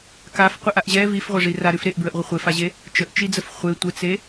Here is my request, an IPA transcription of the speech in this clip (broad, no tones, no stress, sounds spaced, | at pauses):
k a f qʷ e ʔ a ʔ ʑ ɛ v i f ʁʷ ɛ ʐ i r a ɾ ʉ f ɾ e ʔ b ɹ ə ʔ ʁʷ ə χʷ e f a ʑ e | t͡ʃ ə ʔ t͡ʃ i d͡z ə f χʷ e tʷ ə t͡s e